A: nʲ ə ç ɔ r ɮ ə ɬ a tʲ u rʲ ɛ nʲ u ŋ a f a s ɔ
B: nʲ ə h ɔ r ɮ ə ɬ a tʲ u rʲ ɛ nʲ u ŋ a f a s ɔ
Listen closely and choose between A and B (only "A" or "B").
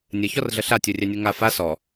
A